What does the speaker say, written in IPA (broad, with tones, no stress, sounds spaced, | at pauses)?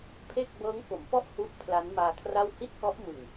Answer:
pʰ e˥˩ k̚ b ɤː˦˥ ŋ k o˩˦ m p ɔ˥˩ ʔ h u˦˥ ʔ pʰ l a˦˥ n m aː˧ kʰ r a˥˩ w h i˥˩ t̚ k ɔ˦˥ ʔ m ɯ˨˩ ŋ